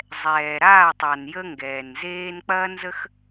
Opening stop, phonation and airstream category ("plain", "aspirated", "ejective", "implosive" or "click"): plain